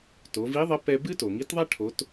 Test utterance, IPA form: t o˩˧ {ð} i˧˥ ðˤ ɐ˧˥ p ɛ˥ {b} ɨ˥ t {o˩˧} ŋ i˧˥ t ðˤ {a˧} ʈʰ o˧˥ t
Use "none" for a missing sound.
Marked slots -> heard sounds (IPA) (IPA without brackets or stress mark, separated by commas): v, b, o˩, a˥